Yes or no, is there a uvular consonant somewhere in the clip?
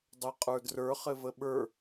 yes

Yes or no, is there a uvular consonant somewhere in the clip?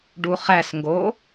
yes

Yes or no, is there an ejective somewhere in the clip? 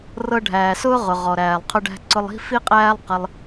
yes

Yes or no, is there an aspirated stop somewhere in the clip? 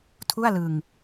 yes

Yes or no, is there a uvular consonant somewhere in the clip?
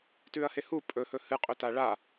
yes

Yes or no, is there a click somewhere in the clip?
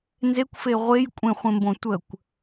no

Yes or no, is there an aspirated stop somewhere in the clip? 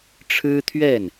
yes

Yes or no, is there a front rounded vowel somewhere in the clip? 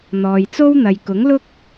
no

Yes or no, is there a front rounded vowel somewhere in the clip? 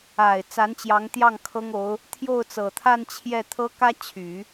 yes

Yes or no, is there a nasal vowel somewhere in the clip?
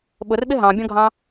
yes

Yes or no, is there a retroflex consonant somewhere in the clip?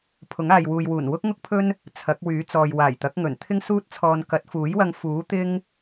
no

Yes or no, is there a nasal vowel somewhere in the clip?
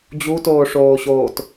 no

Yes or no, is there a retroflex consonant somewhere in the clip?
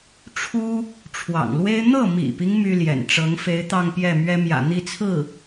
yes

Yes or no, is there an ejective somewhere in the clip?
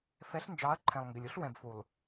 no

